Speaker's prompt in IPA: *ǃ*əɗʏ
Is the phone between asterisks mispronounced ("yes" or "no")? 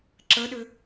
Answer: yes